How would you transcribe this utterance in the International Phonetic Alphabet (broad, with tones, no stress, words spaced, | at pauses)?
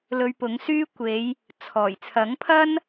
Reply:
lɵ˧ɥpʊ˨˥ŋsyː˥kʷe˨˧j | t͡sʰɔː˨˩j t͡sʰɐ˨˥ŋpʰɐ˥n